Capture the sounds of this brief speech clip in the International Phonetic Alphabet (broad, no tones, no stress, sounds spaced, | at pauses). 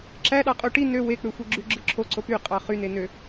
ǁ æ ɗ ɑ qʼ o ʈ i n ø w e k͡p ø xʷ i ɡ͡ǁ y ɡ͡ǁ ɯ ǁʰ o ǀ o p y qʼ ɑ χ y n e n ø